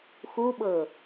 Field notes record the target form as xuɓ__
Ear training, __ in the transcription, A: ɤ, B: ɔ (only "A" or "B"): A